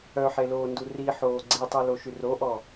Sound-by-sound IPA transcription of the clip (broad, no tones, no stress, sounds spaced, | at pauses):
œ ħ e l oː n d u r i ħ oː ɡ͡ǀ i tˤ y l o ʃ y r o ʔ ɔ